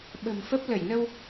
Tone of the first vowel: low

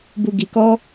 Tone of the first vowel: low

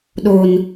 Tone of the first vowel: low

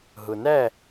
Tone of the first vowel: low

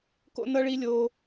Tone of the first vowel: high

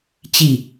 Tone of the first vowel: falling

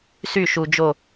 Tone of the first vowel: falling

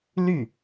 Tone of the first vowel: falling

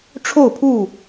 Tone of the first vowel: falling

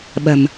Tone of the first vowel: low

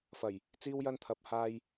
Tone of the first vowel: low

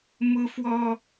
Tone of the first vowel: high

